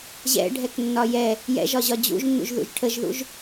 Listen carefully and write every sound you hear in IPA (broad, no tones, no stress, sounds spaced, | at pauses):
ʑ ɛ̰ ɖʱ ɛ k nː ɒ j ɛ | j ɛ̰ ʒ ɒ ʑ ɒ d͡ʑ ṵ ʒ nː ṵ ʒ ð ṵ ʒ ʈʰ ə ʒ ð ṵ ʒ